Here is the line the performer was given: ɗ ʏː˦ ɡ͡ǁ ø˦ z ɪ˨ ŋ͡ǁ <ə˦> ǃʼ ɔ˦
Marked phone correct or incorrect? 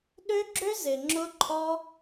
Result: incorrect